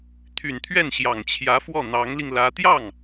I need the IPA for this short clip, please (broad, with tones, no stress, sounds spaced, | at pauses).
t̪ʰ y˨˩ n t̪ʰ ɥ ɛ˥˩ n ɕ j ɑ˨˩ ŋ t͡ɕʰ j ä˧˥ f w ɔ˥˩ n̪ ɑ˧˥ ŋ l i˧ ŋ l ä˧˥ t̪ j ɑ˥˩ ŋ